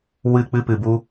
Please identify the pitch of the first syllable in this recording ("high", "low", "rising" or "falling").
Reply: falling